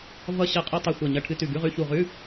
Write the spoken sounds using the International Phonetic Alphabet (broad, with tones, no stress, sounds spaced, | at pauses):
v ʌ˧ ɕ ʌ˧˩ qʼ u˧ tˤ u˧˩ xʷ ɜ˧˩ ɲ ʌ˧˩ ʈʰ ɨ˧˥˧ t ʉ˧˩ ɡ ʉ˧˥˧ ʁ ʉ˧˥˧ ç u˧˩ ʁ ʉ˧˥˧